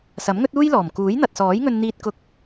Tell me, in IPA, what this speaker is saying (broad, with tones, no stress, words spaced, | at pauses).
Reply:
sɐ˨˥mŋɵ˥t̚uː˥jlɔː˨˩m kuː˨˥jn̪ɐ˨t̚sɔː˨˥j ŋɵ˧nn̪iː˧t̚ kʊ˧k̚